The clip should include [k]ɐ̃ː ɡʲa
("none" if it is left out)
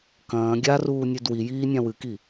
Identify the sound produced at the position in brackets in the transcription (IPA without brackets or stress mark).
k